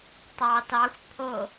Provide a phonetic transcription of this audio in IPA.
tˤ ɑ t ɑ xʷ pʰ o

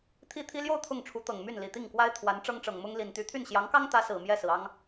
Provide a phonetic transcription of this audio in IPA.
t̪ʰ i˥ t̪ʰ i˥ l j o˥˧ ʊ̯ t̪ʰ ʊ˥˩ ŋ ʈ͡ʂʰ u˧˥ t̪ ɤ˨˩ ŋ m y˥˩ n l i˨˩ t̪ i˥˩ ŋ k w a˥ ɪ̯ t̪ʰ w a˧˥ n ʈ͡ʂ ɤ˥ ŋ ʈ͡ʂ ɤ˨˩ ŋ m ʊ˥ ŋ l i˨˩ n t̪ y˧˥ t̪ʰ y˥˩ n ɕ j ɑ˧˥ ŋ k ɑ˥ ŋ t̪ ä˧˥ s ɹ̩˨˩ m j ɛ˥˩ s ɹ̩˩ ɑ˥ ŋ

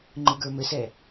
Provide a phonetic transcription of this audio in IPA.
ŋ͡ǃ ɯ ɡ ə˞ m ɘ s ɛ

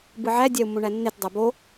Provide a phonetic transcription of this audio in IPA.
b ɯ ʕ æ dʲ æ u̯ mː õ ɳ æ nː e t dˤ æ b o

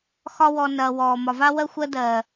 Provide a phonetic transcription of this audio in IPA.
x ɒ˧ w ɔ˨ n ɐː˨ w ɔː˨ m ɒ˨ v a˦ w ɜ˦ xʷ ɜ˦ d ɜː˨

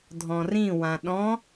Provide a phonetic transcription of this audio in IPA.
dʱ ɔ̃ r ĩ w ã ɗ ɔ̃

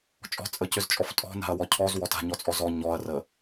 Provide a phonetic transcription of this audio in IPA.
t͡ʃʼ ɔ̤ t͡sʼ ə c ʏ z t͡ʃʼ ɔ f tʼ ɔ̤ n a̤ ɐ̯ w ɔ cʰ ɔ z w ɔ t a̤ ɲ ɔ t͡sʼ ɔ z ɔ ɲ ɔ ɐ̯ r ə

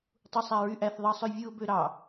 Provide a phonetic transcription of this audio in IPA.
tˤ u sˤ æ ɹ y ʔ æ θ ðˤ ɑ sˤ ø vʲ ɯ ʊ̯ b ø ɾ ɑ

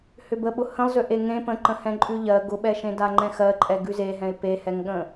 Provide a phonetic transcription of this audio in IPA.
h ʏ b ə ɓ ʊ h ə̃ lˠ z ʏ ʔ e ŋ ẽ p ə̃ ǃ ə̃ h ɛ̃ ǃʼ ʉ ʎ ɜ ɡ ʊ ɓ ɛ ʃ ẽ d a ŋ͡ǃ ɛ̃ x ɜ ǃʼ ɛ ɡ ʉ z e ɦ ɛ̃ ɪ̯ p e h ɛ ŋ ɠ ə̃

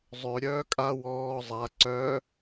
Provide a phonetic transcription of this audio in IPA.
zˤ ø ɾʲ œː kʼ a w ɔː zˤ a ǀ œ

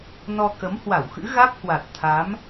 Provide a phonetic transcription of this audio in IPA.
n ɔ˧ k ə˨˦ m h w a˧˩ w x ɨ̰˧˥ ɣ a˦˥ k̚ h w a˨˩ t̚ t̪ʰ a˨˦ m

